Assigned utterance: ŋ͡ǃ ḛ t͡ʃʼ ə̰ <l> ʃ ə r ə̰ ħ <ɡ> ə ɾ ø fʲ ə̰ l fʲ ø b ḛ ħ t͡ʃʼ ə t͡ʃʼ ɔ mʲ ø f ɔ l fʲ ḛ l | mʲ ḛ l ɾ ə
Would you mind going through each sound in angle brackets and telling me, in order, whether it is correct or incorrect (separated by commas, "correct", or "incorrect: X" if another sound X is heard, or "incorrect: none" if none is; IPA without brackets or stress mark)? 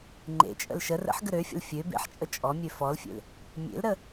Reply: correct, correct